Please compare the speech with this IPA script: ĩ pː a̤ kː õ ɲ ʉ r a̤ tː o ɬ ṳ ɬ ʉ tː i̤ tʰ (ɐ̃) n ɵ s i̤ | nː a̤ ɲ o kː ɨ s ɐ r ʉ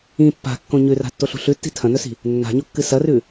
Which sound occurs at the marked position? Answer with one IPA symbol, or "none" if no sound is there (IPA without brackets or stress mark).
ɐ̃